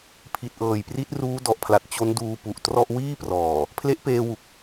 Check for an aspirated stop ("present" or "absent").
present